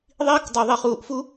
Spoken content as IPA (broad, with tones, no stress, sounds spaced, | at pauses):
ðˤ iː˦ k dˤ u˨ ðˤ i˨ χ uː˨ ʔ f u˦